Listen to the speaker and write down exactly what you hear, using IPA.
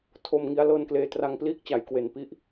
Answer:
tʰ o˧ m ŋ i˦˥ a̯ l ɤː˧ n k l eː˧ t r a˧ ŋ p l iː˥˩ k̚ t͡ɕ a˩˦ j k w e˨˩ n p i˥˩ ʔ

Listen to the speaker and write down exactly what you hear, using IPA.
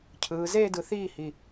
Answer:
cʰ ɯː˨˦ z eː˥˧ d ɯ˨˦ θ iː˥˩ h i˨˩

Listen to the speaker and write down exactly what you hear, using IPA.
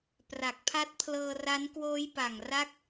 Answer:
p r a˨˩ k̚ pʰ a˦˥ t̚ pʰ l ɤː˧ r a˦˥ n k w oː˦˥ j p a˨˩ ŋ r a˥˩ k̚

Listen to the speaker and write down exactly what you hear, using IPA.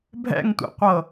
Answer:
bʱ ɛ̰ ŋ tʷ ɛ̰ qʷ ɤ

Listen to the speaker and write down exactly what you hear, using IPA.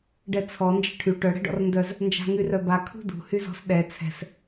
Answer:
ɖ ɛ t͡sʰ ɔ n d͡ʒ ɛ̤ ʈʰ y ʈ œ ɽ ɛ̤ ɖ ɔ̰ r n d œ z | n d͡ʒ a̤ ŋ y r œ b a kʰ ṳ d ṳ h y z ɔ̤ s ɗ ɛ t͡sʰ ɛ̤ s

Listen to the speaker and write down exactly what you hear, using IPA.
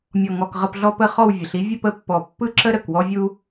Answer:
mʲ ɔ˨˩ ŋ ɔ˨˩ k ʁ ə˥˧ p ɮ ɔ˥ p ə˥˧ χ ɔ˥˧ w vʲ ə˩˧ ɬ i˥ vʲ ə˥˧ p ə˥˧ pː ɔ˨˩ pː ɯ˥ ǁ ə˥ ɾ ə˨˩ k w ɔ˥ vʲ u˥

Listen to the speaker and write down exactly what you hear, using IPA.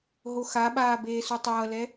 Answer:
ɦ o x a ɓ aː b eː s u tˤ ʌː l ɛ

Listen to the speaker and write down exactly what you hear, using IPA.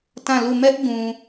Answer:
t ã˦˨ l u˦˨ m ɛ˦ ʔ ɡ ũ˨

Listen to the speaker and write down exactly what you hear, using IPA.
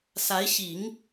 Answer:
s a˧˥ ɪ̯ ɕ i˨˩˦ ŋ

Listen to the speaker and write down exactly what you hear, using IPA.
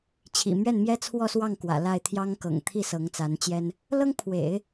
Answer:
t͡ɕʰ ḭ˨˩ m ɥ ɛ˥˩ n m j ɛ˥ t͡sʰ w ɔ˥˧ s w ɑ˥˩ ŋ k w ä̰˨˩ l a˥˩ ɪ̯ t̪ʰ j ɑ˥ ŋ k ɤ̰˨˩ ŋ t̪ʰ i˥˩ s ɤ˧˥ ŋ t͡s a˧˥ n t͡ɕ j ɛ˥ n | l ɤ˥ ŋ pʰ w ḛ˨˩˦ ɪ̯

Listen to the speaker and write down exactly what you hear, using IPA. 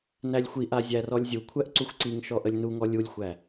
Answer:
n æ lʲ xʷ i ʔ a zʲ æ r ɔ lʲ zʲ u kʷʰ æ ʔ ǀ u xʷ ǀ i ŋ ʃ ɔ ʔ ə lʲ n u ŋ ɔ lʲ u lʲ xʷ æ

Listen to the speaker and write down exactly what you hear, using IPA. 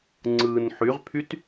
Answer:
ŋ͡ǀ ɯː n ħ y ʁ pʰ y t

